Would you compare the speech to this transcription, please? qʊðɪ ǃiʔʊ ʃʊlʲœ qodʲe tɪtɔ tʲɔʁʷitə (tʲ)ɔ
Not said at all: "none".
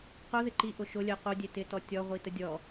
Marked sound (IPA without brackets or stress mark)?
dʲ